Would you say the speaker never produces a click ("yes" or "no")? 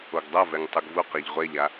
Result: yes